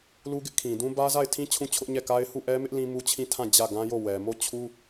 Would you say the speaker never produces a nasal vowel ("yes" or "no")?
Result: no